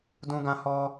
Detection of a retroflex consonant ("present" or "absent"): absent